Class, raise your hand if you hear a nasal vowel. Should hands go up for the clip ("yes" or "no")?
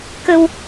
no